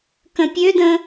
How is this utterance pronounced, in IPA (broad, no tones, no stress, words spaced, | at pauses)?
kə̃pʲødə̃